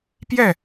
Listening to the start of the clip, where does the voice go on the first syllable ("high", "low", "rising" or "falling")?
falling